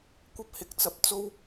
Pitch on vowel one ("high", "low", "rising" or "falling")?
high